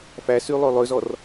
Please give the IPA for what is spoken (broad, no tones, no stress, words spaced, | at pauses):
fæsy lˠølˠøzɔr